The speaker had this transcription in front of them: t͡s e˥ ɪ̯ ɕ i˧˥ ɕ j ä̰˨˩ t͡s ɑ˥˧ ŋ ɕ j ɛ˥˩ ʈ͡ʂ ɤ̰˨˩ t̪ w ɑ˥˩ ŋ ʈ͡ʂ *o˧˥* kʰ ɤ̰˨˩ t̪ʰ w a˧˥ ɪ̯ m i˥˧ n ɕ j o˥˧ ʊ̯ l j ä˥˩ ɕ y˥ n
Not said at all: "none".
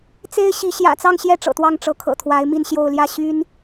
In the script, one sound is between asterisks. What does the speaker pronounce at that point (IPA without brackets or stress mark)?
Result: ɤ˧˥